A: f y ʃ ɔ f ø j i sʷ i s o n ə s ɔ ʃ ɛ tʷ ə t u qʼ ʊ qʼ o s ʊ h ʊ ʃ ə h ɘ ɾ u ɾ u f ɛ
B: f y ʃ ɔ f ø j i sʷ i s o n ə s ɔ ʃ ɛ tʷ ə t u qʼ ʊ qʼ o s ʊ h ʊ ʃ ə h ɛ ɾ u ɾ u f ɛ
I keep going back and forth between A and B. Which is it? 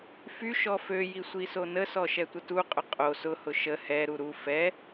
B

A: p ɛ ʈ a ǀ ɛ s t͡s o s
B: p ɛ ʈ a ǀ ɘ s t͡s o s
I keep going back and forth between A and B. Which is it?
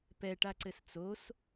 B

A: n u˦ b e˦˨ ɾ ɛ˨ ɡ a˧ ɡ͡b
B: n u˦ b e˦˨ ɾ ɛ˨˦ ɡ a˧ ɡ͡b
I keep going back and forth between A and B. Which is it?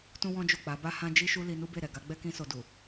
A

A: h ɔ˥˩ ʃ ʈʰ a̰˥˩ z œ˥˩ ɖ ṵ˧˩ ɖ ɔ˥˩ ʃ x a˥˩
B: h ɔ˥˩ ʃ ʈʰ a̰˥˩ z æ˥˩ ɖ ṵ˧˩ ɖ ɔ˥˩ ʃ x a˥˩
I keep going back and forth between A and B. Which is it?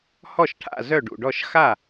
A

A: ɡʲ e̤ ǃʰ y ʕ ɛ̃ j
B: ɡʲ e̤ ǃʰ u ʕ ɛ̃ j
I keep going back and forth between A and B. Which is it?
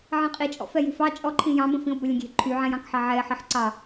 A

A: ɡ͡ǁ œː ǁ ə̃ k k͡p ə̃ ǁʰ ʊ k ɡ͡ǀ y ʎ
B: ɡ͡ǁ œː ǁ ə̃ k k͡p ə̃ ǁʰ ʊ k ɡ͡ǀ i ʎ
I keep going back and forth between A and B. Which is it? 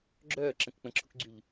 A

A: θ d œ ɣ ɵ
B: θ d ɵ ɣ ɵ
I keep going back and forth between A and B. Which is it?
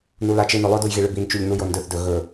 B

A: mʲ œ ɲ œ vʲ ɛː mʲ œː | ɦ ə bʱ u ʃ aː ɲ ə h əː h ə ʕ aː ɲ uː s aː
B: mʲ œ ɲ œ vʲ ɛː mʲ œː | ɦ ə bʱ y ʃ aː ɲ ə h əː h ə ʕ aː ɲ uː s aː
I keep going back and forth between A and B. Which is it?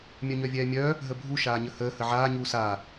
A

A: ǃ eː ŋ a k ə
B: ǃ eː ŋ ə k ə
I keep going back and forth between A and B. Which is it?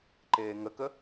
B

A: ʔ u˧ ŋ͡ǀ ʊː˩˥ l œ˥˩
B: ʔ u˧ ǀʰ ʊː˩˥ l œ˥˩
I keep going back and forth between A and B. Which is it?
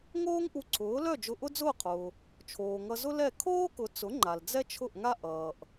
B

